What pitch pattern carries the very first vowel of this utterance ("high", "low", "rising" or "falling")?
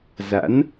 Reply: rising